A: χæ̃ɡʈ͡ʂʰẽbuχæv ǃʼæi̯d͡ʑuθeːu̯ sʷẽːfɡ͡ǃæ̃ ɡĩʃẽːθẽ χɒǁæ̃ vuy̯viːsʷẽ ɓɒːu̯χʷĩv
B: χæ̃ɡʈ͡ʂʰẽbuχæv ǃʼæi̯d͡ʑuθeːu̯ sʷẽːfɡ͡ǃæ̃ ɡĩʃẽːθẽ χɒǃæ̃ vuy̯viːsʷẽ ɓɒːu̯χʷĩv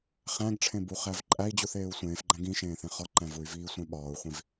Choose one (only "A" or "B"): B